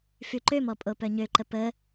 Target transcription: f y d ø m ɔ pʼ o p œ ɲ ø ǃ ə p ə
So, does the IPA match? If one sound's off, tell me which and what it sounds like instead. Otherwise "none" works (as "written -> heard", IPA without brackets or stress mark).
d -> ǃ